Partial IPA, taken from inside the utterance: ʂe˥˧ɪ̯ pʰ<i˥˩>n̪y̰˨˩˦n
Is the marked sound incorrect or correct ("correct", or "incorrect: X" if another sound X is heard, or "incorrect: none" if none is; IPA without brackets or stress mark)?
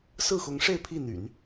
correct